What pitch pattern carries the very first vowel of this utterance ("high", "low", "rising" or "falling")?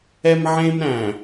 high